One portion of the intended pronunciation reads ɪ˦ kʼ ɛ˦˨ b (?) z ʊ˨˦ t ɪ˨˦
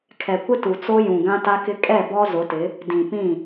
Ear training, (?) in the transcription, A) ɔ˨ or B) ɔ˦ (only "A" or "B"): B